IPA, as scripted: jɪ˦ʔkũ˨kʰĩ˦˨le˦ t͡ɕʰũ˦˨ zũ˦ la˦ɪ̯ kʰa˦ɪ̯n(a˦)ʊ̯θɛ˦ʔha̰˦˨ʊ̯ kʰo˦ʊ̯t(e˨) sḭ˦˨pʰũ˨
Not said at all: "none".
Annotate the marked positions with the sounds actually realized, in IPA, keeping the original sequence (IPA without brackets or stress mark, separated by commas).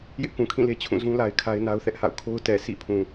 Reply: a˦, ɛ˨